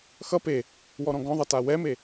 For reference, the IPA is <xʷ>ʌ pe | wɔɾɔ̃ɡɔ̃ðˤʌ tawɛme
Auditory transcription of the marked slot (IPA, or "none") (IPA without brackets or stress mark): x